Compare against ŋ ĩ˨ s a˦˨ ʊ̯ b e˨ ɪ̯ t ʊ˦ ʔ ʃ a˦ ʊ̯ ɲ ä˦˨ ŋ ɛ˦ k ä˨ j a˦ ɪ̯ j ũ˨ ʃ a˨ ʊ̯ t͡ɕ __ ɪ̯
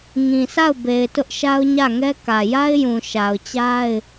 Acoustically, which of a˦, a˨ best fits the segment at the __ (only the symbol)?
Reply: a˦